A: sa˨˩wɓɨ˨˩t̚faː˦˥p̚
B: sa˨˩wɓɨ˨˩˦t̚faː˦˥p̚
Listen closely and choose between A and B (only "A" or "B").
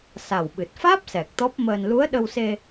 A